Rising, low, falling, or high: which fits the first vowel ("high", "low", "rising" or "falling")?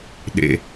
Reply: low